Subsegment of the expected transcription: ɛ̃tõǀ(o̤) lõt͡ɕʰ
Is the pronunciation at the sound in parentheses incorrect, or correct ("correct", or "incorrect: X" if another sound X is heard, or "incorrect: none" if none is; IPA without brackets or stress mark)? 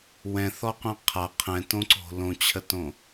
correct